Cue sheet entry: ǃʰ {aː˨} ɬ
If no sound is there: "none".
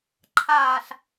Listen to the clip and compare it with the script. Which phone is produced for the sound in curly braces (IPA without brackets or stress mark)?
aː˨